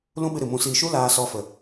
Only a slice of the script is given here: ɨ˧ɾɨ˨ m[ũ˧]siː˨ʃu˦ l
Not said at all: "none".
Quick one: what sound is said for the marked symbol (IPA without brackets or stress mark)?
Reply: ũ˨